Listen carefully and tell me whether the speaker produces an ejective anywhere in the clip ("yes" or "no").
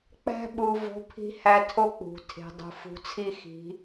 no